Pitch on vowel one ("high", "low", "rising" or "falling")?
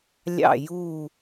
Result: falling